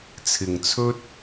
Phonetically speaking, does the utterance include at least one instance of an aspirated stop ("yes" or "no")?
yes